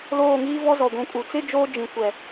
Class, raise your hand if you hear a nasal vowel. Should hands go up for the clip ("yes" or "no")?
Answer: yes